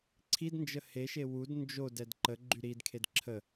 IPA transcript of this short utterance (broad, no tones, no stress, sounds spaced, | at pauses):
ǀʰ i d n d͡ʒ ə h e ʃ e w u d n d͡ʒ o d ɛ d ǃ ə ɡ͡ǃ y ɾ i d kʰ e d ǁʰ ə